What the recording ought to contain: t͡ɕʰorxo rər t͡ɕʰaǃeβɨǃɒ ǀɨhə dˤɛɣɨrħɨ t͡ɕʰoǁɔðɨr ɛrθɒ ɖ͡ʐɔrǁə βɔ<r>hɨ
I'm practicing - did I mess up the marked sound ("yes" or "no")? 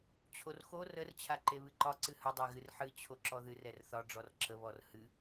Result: no